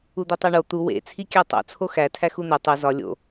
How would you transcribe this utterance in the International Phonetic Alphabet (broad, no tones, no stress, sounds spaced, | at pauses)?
u d̪ i tˤ æ ɳ o t̪ u w ḛ t͡sʰ i kʲ æ tˤ o̰ t͡sʰ o x æ tʰ æ x u n̪ e tˤ u z ɒ lʲ o̰